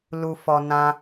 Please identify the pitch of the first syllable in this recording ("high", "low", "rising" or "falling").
low